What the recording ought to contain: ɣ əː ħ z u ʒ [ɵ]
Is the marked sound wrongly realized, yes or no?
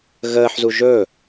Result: no